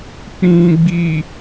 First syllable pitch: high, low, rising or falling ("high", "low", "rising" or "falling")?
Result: low